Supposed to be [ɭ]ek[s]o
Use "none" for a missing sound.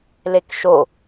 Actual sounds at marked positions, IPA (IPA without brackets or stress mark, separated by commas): l, ʃ